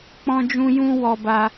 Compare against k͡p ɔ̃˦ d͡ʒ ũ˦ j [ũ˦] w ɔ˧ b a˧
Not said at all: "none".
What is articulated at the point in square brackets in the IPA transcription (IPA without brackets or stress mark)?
ũ˦